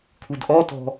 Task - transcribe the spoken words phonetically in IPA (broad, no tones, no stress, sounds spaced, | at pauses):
kʰ u d ʔ ɔ t ɔ̤